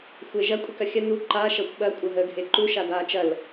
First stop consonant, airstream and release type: ejective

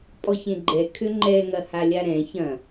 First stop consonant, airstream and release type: ejective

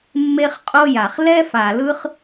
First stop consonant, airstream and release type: ejective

